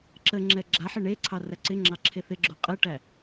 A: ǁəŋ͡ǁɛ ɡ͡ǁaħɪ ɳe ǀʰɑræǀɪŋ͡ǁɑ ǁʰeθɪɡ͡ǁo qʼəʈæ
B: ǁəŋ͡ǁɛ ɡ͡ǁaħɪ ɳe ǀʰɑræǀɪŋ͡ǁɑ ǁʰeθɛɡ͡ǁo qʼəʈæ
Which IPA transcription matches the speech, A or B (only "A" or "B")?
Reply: A